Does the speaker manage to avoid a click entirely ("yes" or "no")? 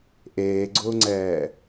no